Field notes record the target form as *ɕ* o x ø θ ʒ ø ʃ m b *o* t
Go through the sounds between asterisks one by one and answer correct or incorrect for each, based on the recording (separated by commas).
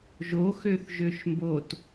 incorrect, correct